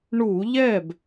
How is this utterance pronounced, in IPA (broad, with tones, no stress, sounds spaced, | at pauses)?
ɳ u˧˩˧ ʎ ɛ˥˩ b